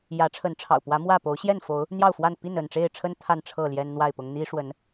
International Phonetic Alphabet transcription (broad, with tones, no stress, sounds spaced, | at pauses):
j ä˨˦ ʈ͡ʂʰ ə˨˦ n ʈ͡ʂʰ ɑ̰˨˩ ʊ̯ p w ä˨˦ m w ä˥˨ p o˨˦ ʊ̯ ɕ j ɛ˥˨ n f o˨˦ ʊ̯ | n̪ j ɑ˥˨ ʊ̯ f w a˥˨ n p i˥˨ n ə˥˨ n ʈ͡ʂ e˥˨ ɪ̯ ʈ͡ʂʰ ə˦ n t̪ʰ a˥˨ n ʈ͡ʂʰ ɤ˥˨ l j ɛ˦ n n̪ w a˥˨ ɪ̯ p ʊ˦ ŋ n̪ i˦ ʂ w ə˨˦ n